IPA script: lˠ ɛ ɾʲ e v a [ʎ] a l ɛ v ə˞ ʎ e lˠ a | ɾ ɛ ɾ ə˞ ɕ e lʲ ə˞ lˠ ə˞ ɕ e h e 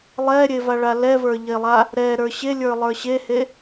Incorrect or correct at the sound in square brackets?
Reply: incorrect: ɭ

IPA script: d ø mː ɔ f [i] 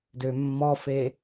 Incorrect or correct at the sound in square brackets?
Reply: incorrect: e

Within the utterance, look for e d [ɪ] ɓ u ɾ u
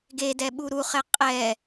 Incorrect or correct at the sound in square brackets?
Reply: incorrect: ɛ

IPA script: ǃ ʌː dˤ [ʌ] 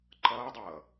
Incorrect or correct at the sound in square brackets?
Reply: incorrect: ʌː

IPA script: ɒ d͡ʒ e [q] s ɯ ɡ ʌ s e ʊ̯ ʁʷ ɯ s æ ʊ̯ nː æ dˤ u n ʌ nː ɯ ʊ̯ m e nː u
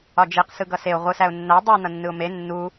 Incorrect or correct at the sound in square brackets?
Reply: correct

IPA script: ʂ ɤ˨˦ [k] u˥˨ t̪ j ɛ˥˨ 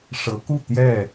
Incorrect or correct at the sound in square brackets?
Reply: correct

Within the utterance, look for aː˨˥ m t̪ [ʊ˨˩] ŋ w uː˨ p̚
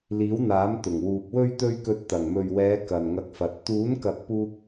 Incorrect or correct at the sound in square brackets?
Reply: correct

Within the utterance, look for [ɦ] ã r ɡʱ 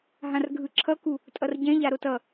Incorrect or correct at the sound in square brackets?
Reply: correct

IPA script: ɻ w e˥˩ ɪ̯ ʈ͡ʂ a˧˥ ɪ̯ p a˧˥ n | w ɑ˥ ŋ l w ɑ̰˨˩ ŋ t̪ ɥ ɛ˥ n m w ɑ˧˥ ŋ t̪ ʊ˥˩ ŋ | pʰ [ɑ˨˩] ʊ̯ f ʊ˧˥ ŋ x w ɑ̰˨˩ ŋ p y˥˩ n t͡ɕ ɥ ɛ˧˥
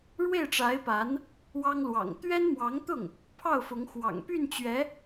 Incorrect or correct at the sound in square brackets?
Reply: incorrect: ɑ˥˩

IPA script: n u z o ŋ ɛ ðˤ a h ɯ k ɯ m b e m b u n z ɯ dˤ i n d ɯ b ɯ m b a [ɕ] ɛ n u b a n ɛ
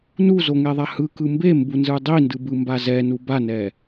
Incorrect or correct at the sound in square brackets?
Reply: incorrect: z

